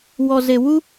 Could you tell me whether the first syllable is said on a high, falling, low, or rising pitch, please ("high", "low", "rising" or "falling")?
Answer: low